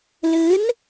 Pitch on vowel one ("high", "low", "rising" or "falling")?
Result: rising